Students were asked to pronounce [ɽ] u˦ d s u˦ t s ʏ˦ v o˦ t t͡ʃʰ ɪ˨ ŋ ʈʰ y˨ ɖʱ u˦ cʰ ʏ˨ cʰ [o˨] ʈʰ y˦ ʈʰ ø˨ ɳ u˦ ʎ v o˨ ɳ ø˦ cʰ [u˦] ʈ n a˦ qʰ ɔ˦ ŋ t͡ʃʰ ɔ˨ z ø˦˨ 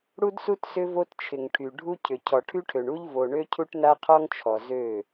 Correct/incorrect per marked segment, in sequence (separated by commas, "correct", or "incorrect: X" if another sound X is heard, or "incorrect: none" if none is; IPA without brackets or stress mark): correct, incorrect: ɔ˨, correct